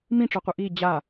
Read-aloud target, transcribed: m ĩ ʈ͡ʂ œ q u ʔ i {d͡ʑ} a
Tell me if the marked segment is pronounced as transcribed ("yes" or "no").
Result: yes